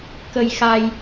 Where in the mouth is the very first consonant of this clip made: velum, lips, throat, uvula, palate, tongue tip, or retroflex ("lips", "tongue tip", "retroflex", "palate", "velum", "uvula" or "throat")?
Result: velum